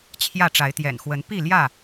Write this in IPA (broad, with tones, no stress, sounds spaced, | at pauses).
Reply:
t͡ɕʰ j ä˥˨ ʈ͡ʂ a˨˦ ɪ̯ t̪ j ɛ̰˨˩ n x w ə˨˦ n p i˥˨ l j ä˥˨